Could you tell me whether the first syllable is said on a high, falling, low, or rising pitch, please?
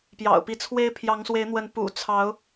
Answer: low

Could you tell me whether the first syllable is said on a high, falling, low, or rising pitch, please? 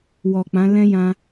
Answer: low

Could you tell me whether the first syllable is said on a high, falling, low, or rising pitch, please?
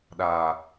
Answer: low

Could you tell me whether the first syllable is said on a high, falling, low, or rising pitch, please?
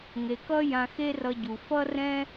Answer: low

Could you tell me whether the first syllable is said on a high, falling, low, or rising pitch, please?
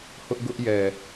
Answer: high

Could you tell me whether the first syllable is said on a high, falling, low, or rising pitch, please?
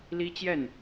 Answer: high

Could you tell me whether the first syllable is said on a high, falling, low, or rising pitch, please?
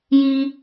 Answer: high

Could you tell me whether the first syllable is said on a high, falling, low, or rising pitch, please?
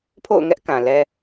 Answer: falling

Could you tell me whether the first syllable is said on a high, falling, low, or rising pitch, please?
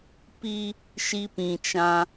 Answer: high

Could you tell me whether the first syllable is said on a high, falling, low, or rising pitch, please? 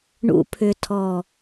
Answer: low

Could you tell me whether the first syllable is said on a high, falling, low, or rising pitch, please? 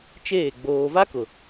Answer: falling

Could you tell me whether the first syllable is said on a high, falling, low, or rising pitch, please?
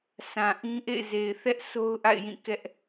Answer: low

